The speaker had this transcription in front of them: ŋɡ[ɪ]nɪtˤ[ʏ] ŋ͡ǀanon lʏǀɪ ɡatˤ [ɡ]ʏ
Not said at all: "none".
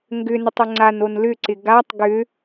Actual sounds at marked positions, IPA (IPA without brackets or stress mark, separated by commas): ʏ, ʏ, ɡ